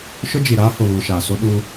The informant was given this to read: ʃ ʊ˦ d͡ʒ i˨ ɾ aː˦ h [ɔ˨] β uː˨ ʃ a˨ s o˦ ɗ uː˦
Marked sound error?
yes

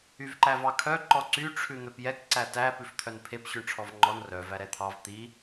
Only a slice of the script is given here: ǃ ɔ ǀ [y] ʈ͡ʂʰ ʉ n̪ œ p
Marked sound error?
no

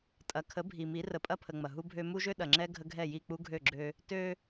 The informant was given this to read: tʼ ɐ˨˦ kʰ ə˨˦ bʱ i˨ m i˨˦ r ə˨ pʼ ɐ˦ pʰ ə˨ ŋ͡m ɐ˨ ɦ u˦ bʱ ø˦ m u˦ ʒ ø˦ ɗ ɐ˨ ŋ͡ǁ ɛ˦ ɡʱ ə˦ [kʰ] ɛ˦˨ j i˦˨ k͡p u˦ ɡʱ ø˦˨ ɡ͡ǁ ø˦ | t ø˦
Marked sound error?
yes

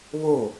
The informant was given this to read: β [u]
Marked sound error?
yes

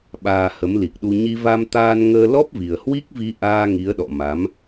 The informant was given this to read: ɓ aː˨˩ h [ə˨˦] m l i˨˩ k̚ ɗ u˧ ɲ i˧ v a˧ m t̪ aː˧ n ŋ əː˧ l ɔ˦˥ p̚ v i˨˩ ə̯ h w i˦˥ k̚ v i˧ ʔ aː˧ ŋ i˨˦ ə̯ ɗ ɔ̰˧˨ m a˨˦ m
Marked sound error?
no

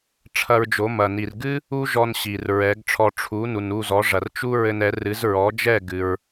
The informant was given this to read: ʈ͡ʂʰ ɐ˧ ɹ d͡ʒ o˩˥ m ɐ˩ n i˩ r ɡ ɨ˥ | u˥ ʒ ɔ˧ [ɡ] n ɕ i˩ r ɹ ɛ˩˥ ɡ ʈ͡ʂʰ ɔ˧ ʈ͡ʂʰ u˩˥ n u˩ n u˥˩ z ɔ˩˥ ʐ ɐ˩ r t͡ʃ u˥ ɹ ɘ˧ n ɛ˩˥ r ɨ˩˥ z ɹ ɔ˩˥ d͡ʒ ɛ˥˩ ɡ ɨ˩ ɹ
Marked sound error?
yes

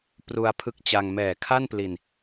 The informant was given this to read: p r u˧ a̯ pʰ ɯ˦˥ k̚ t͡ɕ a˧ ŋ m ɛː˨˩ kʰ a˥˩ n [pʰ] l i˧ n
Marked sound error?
yes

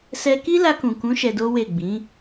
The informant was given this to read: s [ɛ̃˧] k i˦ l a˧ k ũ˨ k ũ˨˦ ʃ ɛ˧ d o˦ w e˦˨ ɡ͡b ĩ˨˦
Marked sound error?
yes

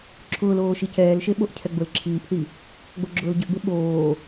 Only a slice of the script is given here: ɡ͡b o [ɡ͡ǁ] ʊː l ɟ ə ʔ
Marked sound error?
no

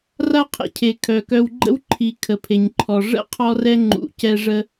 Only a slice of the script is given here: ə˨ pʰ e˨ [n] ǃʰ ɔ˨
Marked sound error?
yes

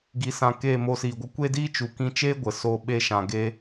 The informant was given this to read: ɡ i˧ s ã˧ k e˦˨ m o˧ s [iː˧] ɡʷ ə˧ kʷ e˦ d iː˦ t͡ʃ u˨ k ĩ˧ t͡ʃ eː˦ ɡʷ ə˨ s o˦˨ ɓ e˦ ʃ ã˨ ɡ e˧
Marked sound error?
yes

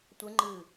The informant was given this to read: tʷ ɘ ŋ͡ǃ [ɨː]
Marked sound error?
no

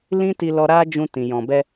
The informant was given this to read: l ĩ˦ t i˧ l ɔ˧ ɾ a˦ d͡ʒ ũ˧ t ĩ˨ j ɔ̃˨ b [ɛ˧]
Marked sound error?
no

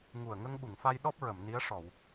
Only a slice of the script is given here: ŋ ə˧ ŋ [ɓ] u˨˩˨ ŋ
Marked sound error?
no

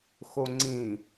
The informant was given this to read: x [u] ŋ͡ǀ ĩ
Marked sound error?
yes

